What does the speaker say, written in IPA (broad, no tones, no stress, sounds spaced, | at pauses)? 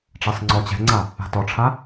ʈ͡ʂ ɛ sˤ ŋ͡ǀ ɔ t͡ɕ ɛ̤ ŋ͡ǀ a | a̤ t ɔ ʈ͡ʂʰ a